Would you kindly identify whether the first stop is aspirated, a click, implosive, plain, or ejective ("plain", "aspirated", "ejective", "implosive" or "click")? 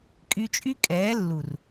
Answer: ejective